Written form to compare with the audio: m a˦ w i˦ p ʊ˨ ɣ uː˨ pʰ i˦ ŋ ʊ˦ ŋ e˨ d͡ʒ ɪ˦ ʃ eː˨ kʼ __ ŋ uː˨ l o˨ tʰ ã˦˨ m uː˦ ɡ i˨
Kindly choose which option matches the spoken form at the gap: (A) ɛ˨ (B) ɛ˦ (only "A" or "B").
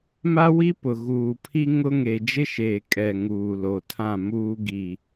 A